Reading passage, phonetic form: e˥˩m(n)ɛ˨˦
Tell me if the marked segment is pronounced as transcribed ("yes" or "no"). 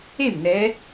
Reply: yes